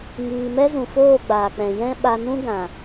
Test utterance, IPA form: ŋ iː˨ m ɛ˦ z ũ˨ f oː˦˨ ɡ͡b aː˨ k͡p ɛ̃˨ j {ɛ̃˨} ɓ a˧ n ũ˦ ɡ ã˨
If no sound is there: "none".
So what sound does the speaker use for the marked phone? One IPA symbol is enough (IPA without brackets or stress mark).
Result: ɛ̃˦